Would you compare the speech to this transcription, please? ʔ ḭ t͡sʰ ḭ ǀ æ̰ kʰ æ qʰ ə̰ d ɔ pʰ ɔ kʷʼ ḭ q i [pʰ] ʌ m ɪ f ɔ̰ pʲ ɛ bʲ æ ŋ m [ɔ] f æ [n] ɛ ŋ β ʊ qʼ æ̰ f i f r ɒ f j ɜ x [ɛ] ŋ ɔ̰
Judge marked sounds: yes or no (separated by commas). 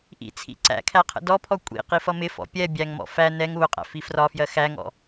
no, no, yes, no